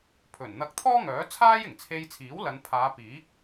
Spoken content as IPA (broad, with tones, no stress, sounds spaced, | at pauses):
pʰ ɵ˨˩ n n̪ ɐ˧ k̚ t̪ʰ ɔː˥ ŋ œː˨˥ t͡sʰ aː˥ j ɪ˨˩ ŋ t͡sʰ e˧ j t͡sʰ iː˨˥ w l ɐ˨˧ n pʰ aː˨˧ p iː˨˥ k̚